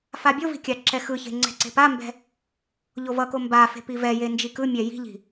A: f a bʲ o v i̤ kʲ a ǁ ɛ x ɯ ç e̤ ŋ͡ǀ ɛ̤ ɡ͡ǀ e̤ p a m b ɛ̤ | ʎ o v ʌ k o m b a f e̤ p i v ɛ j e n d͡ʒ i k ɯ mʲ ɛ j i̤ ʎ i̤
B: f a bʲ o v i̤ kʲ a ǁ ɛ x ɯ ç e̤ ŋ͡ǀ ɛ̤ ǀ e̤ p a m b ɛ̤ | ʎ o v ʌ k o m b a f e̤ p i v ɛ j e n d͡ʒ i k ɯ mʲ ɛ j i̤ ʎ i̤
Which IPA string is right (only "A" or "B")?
B